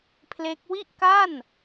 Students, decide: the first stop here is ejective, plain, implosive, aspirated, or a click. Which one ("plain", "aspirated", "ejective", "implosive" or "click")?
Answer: aspirated